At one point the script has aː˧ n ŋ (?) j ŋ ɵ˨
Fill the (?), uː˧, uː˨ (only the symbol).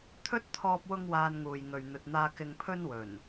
uː˨